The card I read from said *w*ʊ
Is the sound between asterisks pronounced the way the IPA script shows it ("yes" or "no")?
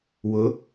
yes